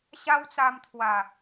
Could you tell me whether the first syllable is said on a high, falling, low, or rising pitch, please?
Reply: high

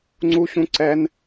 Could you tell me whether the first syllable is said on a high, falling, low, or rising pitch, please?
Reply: high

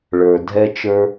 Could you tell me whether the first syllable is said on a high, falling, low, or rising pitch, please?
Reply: low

